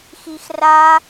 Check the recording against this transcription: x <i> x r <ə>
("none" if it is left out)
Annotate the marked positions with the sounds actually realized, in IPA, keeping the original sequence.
i, a

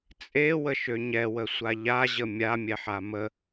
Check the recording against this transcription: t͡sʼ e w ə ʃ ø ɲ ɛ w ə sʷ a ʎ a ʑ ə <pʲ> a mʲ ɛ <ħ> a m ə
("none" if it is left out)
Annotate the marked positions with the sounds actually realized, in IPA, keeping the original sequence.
mʲ, ħ

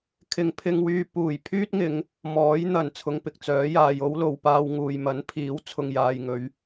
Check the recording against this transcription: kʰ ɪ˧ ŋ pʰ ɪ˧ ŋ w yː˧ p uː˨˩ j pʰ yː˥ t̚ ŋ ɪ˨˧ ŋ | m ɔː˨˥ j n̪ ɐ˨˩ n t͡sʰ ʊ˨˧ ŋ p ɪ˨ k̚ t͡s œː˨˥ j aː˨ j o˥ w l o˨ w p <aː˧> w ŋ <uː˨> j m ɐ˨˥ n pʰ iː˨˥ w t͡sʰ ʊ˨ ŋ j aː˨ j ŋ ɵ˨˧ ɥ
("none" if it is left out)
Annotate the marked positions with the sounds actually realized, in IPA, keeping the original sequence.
aː˧, uː˨

